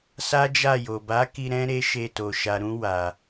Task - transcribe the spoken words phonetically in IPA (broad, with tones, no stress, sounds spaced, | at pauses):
s a˦ d͡ʒ a˦˨ j o˨ b a˨˦ k i˧ ɾ ɛ̃˦ ɾ e˦ ʃ e˧ t o˨ ʃ a˨ ɾ ũ˧ w a˨